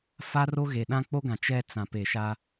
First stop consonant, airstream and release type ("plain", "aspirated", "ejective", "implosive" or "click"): implosive